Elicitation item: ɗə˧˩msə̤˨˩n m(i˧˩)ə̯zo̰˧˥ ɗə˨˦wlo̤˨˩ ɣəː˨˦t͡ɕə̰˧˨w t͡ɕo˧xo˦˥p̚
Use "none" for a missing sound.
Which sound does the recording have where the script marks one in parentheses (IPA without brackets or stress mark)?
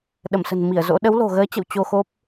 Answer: i˧˩